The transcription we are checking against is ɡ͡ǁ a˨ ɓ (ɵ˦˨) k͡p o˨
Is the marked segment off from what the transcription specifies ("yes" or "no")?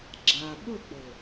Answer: no